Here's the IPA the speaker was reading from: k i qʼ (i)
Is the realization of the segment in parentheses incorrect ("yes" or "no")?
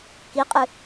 yes